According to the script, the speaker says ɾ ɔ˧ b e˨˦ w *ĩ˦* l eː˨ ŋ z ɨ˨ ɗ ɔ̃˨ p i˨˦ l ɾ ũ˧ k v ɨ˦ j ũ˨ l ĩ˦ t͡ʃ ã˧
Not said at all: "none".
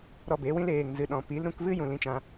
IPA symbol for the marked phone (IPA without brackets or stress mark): ĩ˦